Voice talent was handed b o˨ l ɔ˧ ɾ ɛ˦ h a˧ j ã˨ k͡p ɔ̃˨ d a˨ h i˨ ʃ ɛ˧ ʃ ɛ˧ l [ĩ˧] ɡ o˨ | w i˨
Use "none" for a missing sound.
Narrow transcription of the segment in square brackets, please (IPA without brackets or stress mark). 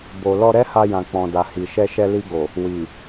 i˧